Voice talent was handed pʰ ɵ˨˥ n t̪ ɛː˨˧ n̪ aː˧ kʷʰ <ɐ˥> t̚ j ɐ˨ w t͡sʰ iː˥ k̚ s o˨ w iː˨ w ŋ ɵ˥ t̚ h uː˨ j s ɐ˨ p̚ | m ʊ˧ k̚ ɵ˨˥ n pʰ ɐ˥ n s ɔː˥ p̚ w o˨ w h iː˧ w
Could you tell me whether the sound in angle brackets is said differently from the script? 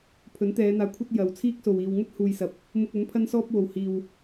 no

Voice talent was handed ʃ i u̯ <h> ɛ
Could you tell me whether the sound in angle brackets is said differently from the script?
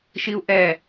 yes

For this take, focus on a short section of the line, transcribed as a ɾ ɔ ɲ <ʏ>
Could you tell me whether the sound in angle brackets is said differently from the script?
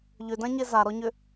no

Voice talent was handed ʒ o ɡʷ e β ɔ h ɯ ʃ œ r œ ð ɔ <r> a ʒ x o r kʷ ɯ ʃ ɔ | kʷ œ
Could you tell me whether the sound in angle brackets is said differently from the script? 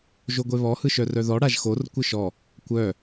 yes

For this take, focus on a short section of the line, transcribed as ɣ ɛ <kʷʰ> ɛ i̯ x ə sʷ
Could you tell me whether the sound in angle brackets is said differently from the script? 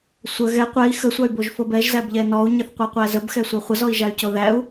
yes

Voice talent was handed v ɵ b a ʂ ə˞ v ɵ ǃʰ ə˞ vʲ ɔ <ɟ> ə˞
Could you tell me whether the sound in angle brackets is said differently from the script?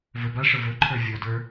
yes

